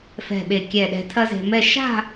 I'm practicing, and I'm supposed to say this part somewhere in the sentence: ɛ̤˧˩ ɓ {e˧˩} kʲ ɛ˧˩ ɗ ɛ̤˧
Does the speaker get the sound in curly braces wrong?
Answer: no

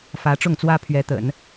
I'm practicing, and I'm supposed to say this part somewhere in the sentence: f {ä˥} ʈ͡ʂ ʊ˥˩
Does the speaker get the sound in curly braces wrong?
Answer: yes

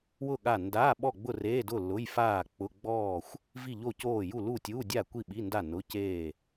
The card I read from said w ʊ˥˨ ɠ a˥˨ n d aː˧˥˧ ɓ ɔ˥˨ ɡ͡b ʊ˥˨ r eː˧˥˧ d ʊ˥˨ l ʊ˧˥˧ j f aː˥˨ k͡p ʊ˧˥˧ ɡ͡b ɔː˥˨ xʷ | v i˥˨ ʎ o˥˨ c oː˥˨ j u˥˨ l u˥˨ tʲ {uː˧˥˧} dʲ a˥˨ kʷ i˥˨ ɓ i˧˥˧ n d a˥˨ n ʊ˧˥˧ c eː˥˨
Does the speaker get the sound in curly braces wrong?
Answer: no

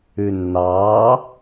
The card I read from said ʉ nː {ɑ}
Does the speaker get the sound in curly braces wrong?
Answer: yes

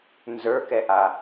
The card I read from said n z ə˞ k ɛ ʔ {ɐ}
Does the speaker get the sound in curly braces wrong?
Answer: yes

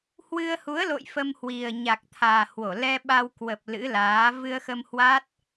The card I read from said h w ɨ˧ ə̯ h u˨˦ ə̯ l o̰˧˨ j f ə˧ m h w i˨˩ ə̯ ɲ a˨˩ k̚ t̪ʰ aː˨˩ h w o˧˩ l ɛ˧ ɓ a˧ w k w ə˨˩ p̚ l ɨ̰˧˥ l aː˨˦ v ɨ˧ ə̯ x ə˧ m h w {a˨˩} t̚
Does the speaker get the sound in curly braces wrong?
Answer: yes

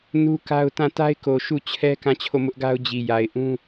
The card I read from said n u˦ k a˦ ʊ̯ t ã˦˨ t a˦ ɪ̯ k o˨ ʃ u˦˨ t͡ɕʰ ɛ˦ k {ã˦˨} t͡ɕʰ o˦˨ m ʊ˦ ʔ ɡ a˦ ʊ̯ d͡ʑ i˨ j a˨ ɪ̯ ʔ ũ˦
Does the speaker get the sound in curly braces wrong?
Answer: no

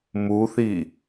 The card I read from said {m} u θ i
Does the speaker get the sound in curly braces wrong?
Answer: no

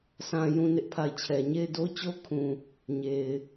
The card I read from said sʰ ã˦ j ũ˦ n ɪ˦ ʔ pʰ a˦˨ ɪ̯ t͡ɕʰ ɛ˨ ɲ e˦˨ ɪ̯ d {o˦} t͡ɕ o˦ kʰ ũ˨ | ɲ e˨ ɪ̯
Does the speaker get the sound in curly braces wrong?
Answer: no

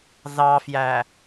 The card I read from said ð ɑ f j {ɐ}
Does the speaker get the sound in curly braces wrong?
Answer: yes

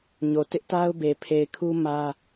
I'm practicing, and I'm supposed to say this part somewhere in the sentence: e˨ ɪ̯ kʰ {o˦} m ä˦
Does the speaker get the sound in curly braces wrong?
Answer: yes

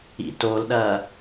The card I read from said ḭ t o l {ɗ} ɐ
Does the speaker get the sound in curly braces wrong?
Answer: no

